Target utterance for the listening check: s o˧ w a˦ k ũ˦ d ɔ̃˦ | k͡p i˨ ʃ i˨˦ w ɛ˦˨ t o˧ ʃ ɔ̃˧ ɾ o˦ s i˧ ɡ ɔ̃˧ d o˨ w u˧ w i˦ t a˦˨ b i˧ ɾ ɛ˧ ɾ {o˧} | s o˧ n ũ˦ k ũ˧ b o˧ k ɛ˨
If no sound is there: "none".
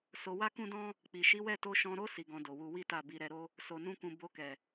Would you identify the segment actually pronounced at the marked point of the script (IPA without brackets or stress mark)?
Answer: o˦